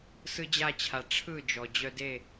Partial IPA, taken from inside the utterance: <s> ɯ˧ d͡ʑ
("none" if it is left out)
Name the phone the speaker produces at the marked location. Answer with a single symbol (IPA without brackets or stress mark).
s